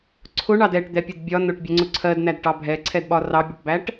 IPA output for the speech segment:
ǀʰʊɳɑd ɛʈd̪ɛpʲʊd bʲɒ nʊʈbʲɛŋ͡ǀʊ ǀʰɜdnædʈɑ bʱɛǀʰɛdɓɒ rɑbʲɒʈbæʈ

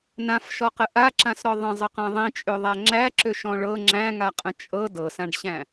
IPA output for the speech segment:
nãfʃɔqə ʔaǁãsɾɔ ðˤə̃zˤəqã ðˤĩt͡ʃʼøðˤæ ŋ͡ǁæǁøʃɔ̃ ɭɤ ŋ͡ǁæ̃ŋaqʼə̃ t͡ʃʼɤ dɤsãɖɕæ̃

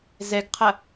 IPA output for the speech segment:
zɛɡqʰɐ

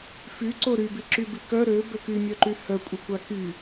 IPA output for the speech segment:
fyǀo ɾybi ǁybikœ ɾø bøkymʲœǃy hœkʷʼəkʷa ky

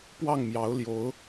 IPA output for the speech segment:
pwɑ˥˩ŋmjɑ˧˥ʊ̯ ljo˧˥ʊ̯

